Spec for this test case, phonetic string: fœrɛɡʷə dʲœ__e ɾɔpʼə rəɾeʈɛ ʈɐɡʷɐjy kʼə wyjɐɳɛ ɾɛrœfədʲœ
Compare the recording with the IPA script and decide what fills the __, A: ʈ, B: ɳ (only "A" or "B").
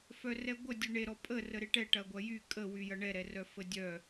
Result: B